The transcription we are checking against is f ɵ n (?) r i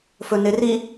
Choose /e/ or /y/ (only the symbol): e